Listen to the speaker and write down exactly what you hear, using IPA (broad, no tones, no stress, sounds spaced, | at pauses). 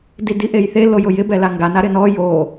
d i d i ʔ e j θ e l o j ʊ j ɪ b ɛ l a ŋ ɡ a n a ɾ ɪ n ɔ j o